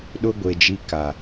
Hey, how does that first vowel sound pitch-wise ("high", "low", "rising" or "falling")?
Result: high